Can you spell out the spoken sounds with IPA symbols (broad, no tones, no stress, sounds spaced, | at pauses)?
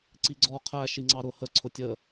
ǀ i ɡ͡ǀ ɔ qʰ æ ʃ i ŋ͡ǀ ɑ ɾ ʊ h ə ǀʰ ʊ tʲ ə